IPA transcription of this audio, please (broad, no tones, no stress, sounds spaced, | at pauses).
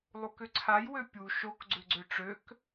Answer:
lˠ u k ʏ ǀʰ a j w ø pʲ u ʃ o k ɡ͡ǀ ʏ ɡ͡ǀ ø ʈ͡ʂ ø k